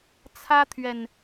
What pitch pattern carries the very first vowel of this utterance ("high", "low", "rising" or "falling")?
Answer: high